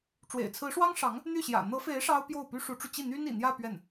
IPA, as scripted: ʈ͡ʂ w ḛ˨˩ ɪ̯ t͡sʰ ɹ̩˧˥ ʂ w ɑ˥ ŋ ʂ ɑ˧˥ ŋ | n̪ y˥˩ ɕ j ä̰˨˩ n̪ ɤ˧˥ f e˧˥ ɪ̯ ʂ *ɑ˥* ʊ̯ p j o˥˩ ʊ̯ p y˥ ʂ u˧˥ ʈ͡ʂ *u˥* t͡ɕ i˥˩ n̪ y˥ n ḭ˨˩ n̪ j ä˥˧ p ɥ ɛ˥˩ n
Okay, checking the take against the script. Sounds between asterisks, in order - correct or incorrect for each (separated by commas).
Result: correct, incorrect